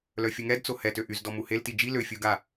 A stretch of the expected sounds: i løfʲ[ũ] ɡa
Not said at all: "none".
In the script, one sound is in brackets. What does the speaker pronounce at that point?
u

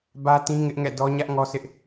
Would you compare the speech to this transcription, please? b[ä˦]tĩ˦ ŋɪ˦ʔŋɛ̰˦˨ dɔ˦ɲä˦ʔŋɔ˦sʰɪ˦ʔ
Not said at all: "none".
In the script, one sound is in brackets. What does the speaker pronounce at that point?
ä˦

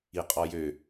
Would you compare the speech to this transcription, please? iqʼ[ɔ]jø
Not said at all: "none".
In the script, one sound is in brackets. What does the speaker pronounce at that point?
ɔ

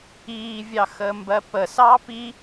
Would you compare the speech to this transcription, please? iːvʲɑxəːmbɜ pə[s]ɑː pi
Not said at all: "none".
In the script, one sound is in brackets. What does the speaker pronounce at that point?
s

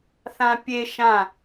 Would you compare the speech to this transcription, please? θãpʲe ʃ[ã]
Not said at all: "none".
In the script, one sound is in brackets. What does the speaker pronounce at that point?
ã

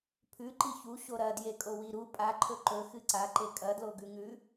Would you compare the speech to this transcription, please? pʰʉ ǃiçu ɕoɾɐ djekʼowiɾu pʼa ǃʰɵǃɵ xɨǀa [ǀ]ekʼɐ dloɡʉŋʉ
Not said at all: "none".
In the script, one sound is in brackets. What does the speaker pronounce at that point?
ǃ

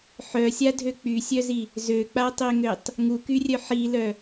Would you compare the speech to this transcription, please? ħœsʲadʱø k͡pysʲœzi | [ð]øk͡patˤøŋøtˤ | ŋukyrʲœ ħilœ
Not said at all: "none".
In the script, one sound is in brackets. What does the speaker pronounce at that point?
z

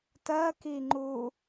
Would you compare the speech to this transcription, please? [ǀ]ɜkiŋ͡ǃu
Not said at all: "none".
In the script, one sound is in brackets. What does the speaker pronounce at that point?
t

